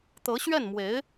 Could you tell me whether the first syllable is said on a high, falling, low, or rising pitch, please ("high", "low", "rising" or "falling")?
rising